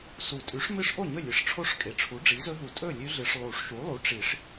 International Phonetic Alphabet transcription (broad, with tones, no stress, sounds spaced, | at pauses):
s u˨˩˦ tʼ ʉ˩˥ ʂ m ɨ˦˥ ʂ ʔ o˥˩ ɲ ɵ˥˩ lʲ ɨ˩˥ ʂ ʈ͡ʂʰ o˦˥ ʂ kʼ e˩˥ ʈ͡ʂʰ u˩˥ ɖ͡ʐ i˩˥ z ɵ˦˥ ɦ u˨˩˦ tʼ ɵ˥˩ lʲ ʉ˦˥ ɮ ɨ˨˩˦ ʂ lˠ u˨˩˦ ʂ ʃ u˩˥ lˠ u˩˥ ʈ͡ʂ i˨˩˦ ʂ